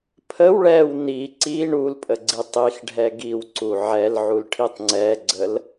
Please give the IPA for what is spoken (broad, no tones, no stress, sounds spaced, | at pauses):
pʰ ə w ɭ ɛ w n i ǀ i ɳ u l pʼ ə ɡ͡ǀ i tˤ i x ɖʱ ɛ ɡ i w ǀ u ʕ ɛ l ʕ u l ʈʰ i tˤ ŋ͡ǀ ɛ ɡ͡ǀ ə l